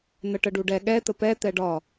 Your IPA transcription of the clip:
n̪ ə ʈ ə ɖ u ɖ ɛ ɠ ɛ t̪ ə p ɛ t̪ ɛ ɖ ɒ

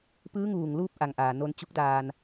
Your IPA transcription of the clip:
p ɯː˧˥ ŋ uː˩ ŋ l uː˥˨ p̚ ʔ a˩ ŋ ʔ aː˩ n o˧ n t͡ɕ u˧˥ k̚ d aː˧ n

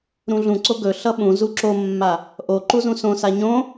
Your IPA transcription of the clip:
ɾ ũ ɮ ũ ǀ o ɡ ɵ ɬ ʌ ɓ ũ z u ǁ o mː a | ʔ o ǃ u z ũ s õ s a ɲ õ

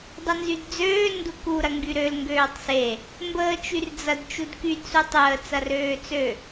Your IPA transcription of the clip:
dˤ ə n z y d d͡z øː n d u k u ɾ ɐ ŋ ɡ y ɾ ø l ŋ ɡ øː tˤ s e | m b əː t͡ʃ y r d͡z ɐ d t͡ʃ u d k y d s u tˤ əː t͡s ɐ r øː t͡s ø

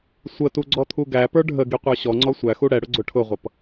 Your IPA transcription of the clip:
sʷ ə t u ɡ͡ǀ ɔ t̪ʰ u ɡ æ p ə˞ ɖʱ ə ɡ i qʷ ə˞ ɕ ɔ ŋ͡ǀ ɔ sʷ æ x u ɽ ɛ ɽ ʊ ɡ͡ǀ ʊ ʈʰ ʊ ʁʷ ʌ p

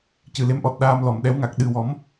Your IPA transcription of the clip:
c ɨ˨˩ l e˧˥ m ʔ ɔ˨˩ t̚ ɗ aː˧ m l ɔ˨˩˨ m ɗ ɛ˧˥ w ŋ a˨˩ k̚ ɗ ɨ˨˩ w ɔ˨˩˦ m

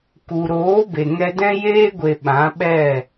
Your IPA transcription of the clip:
k u˨ ɾ oː˨˦ b e˨ ŋ ɛ˧ d ɛ̃˦ j eː˦ ɡʷ e˨ ɓ ã˨˦ ɓ ɛ˦˨

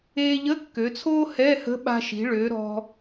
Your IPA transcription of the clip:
eː˧ ʎ ə˧˥˧ kː ø˩˧ t͡sʰ oː˥ h ɛ˧˥˧ h ə̤˧˥ ɓ a̤˧ ʃ i̤˩˧ ɭ ø˩˧ ɾ ɔ̤˧

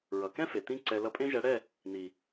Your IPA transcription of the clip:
ɹ ʌ˨ k ɛ̃˦ f e˨ t̪ ĩ˧ ǀ ɛ˨ l ʌ˧ pʼ ẽ˦ ʒ ɛ˨˦ ɽ ɛ˦˨ | n̪ i˨

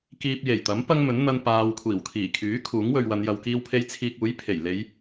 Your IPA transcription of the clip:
k iː˧ p̚ j e˨˩ j t̪ ɐ˨˥ m p ɐ˥ ŋ m ɵ˨˥ n n̪ ɐ˧ n p aː˨ w kʷʰ iː˨˩ w kʰ iː˨˩ kʰ yː˨˥ kʰ uː˨˥ ŋ w ɵ˨ ɥ w ɐ˨˧ n j ɐ˨ w k iː˧ w pʰ e˧ j t͡sʰ iː˧ k̚ uː˨˥ j pʰ e˨˩ j l e˨˧ j

